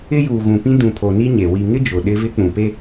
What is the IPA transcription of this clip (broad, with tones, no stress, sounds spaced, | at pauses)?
ɪ˦ j uː˨ ɣ ũ˨ p ĩ˦ d ũ˨ pʰ o˨ n i˦ ɲ e˨ w i˨ ŋ ɪ˦ d͡ʒ ʊ˨ ɗ ɪ˦ v ɪ˦ k͡p ũ˨ p e˦